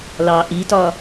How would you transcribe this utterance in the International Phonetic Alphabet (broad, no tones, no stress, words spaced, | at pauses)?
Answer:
lɑ ʔitɒ